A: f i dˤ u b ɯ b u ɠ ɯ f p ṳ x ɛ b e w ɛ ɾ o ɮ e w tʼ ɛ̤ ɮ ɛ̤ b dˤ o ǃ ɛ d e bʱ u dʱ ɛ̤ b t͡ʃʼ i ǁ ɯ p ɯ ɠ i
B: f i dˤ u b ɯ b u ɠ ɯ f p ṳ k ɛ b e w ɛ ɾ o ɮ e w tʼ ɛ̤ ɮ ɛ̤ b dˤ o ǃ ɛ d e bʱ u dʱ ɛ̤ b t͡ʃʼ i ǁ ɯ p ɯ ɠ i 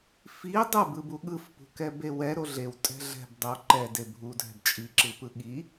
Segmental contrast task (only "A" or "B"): B